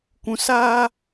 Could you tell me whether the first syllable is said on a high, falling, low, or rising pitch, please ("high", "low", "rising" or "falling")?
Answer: low